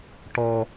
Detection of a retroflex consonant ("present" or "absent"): present